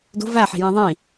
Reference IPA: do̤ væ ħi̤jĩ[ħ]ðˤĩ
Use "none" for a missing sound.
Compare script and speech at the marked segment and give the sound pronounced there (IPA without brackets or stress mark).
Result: none